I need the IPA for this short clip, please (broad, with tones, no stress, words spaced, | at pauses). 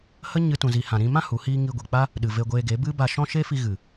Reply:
hə˦ ɲɨ˦tũ˧zi˧ hã˨ɾĩ˧mã˦ hu˨˦hiː˦ ŋi˧ɡʷi˨k͡pa˦ | ɗɨ˨ ve˧ɡʷeː˧ɡe˨˦bɨ˦ ba˧ʃɔ̃˦ ʃe˦fi˧ ɣɨ˨